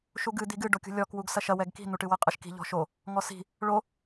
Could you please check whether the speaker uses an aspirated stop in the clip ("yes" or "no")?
no